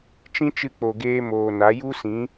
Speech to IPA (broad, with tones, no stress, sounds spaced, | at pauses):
t͡ʃ ĩ˦ t͡ʃ ɨ˧ k͡p o˨ ɡ eː˧ m oː˨ n a˨˦ j u˦ s ĩ˨˦